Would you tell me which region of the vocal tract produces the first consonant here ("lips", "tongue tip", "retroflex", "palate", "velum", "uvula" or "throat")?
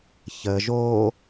palate